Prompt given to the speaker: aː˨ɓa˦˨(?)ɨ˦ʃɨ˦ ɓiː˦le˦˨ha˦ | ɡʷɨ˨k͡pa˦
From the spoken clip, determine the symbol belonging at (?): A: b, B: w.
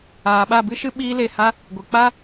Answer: A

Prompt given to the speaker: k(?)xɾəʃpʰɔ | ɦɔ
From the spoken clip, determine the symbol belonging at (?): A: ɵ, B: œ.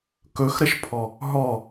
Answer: A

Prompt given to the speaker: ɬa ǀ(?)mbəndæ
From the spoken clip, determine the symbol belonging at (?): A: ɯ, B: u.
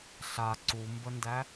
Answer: B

